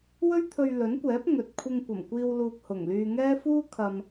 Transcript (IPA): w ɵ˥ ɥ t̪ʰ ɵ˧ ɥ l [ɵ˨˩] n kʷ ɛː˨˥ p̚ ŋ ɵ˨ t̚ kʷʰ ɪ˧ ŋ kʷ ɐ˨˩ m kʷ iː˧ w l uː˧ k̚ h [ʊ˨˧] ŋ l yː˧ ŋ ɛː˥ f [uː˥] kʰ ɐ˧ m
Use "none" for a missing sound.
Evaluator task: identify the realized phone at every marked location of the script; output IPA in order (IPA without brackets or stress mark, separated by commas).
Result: ɵ˨˥, ʊ˨˩, uː˥